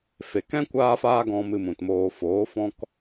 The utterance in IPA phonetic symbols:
f e˨ k ɛ̃˦ kʷ aː˦ f aː˦ ɡ ɔ̃˧ m ɨ˧ m ũ˨ t m oː˧ f oː˨˦ f ɔ̃˦ k

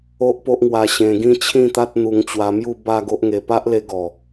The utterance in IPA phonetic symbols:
o˦ ʔ p o˦ ʔ ŋ w a˧ ɕ ẽ˧ ɡ ĩ˥˧ t͡ɕʰ ĩ˥˧ t̪ a˦ t̚ n̪ u˧ ŋ t͡ɕ w a˧ m j u˥˧ b a˥˧ ɡ o˦ ʔ ŋ e˧ p a˦ ʔ l e˧ ɡ ɔ˨˩

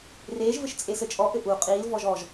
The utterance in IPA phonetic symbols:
r eː ʒ v ɘ ʃ t͡sʼ e s ɘ t͡ʃʼ ɔ ʔ ɘ ʔ u qʼ iː l v ɔ ʒ ɔ ʒ

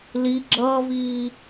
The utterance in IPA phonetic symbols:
l i ɡ͡ǁ ʌː v iː

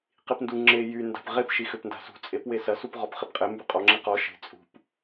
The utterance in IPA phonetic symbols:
q i p n d u ŋ͡ǁ e j y n d a̤ p ʁ e p ʃ i x ø p n d a̤ s ṳ t͡sʼ e p w e s ɐ s u p ʁ ɔ p χ e p qʼ e m b y qʼ ɔ ŋ͡ǁ i q ɔ ʃ e̤ t͡sʼ ṳ p

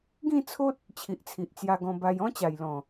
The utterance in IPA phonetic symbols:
ɡ ĩ˥˧ t͡sʰ o˦ t̚ | t͡ɕʰ i˨ ʔ t͡sʰ i˨ ʔ t͡s j a˧ ɡ ɔ̃˧ b a˧ j ɔ̃˦ t͡ɕ a˨˩ j l ɔ̃˨˩

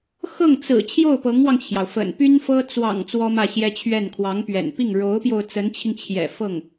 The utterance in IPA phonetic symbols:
x ɤ˥˩ ŋ t͡s ɹ̩˨˩ t͡ɕʰ j o˥˩ ʊ̯ p ɤ˧˥ ŋ w ɑ˧ ŋ t͡ɕʰ j ɑ˩ ʊ̯ f ə̰˨˩ n p y˥ n f ɤ˥ t͡s w ɑ̰˨˩ ŋ t͡s w ɔ˥ m ä˥˩ ɕ j ɛ˥ t͡ɕʰ ɥ ɛ˥˩ n kʰ w ɑ˧˥ ŋ p ɥ ɛ̰˨˩ n p i˥˩ ŋ ɻ o˧˥ ʊ̯ p j o˧ ʊ̯ t͡s ə˧˥ n t͡ɕʰ i˧ ŋ t͡ɕʰ j ɛ̰˨˩ f ɤ˥˩ ŋ

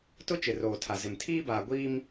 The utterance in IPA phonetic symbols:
t ʊ˦ t͡ʃ ɪ˨ r oː˨ tʰ a˨ z ɪ˨ m tʰ iː˦ b aː˨ ɡʷ iː˦ m

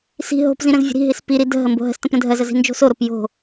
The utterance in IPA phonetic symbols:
s i̤ ɦ o̤ p z ĩ ɾ ə̃ z vʲ ə̤ ɾ i̤ ɦ i s p i ɾ i d ə̤ ɦ ə m b o̤ ɦ ə̤ s t ə̃ p ɾ ə̃ dʱ ɜ z ə z i̤ n d͡ʒ o̤ s o ɾ o p j o̤

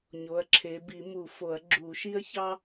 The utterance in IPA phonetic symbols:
ɲ o˨˦ ɐ̯ ǁʰ e˨˦ b i˨˩˦ m u˨˩˦ f o˨˩˦ ɐ̯ ɡ͡ǁ u˨˩˦ ʃ i˥ ɐ̯ ç ɑ˥

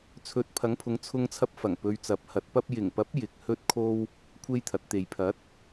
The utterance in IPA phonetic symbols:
t͡sʰ ɵ˨˥ t̚ pʰ ɐ˨˥ ŋ pʰ ʊ˨˧ ŋ t͡sʰ ʊ˧ ŋ t͡sʰ ɐ˧ p̚ f ɐ˨˩ ŋ p ɵ˧ ɥ t͡s ɐ˨˥ p̚ h ɐ˨˥ t̚ p ɐ˥ p̚ j ɪ˨˩ ŋ p ɐ˨˥ p̚ j ɪ˨ k̚ h ɵ˥ t̚ kʰ o˥ w | kʷʰ e˥ j t̪ʰ ɐ˨˥ t̚ t̪ e˨ j pʰ ɐ˨˥ t̚

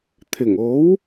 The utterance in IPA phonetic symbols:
t̪ʰ ɪ˨˩ ŋ o˨˥ w

